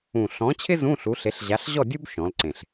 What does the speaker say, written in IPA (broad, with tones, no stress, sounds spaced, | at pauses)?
ũ˨˩ ɬ ɔ̃˨˥ t͡ɕʰ ɪ˥ z ũ˧˥˧ ɬ u˨˥ ɬ e˨˥ ɬ ʑ a˨˥ ɬ ʑ ɔ˥˨ dʲ u˥ b ʃ ɔ̃˩˧ l ǀ ẽ˨˩ ɬ